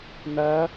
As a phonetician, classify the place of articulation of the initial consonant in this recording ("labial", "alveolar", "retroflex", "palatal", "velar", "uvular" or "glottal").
alveolar